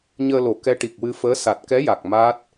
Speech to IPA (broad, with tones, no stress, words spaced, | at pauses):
ɲəː˧lo˨˩˦ kɛ˧˥ʈi˨˩k̚wɨ˧fəː˧˥ sa˨˩t̚kɛ˧˥ja˨˩k̚ ma˦˥t̚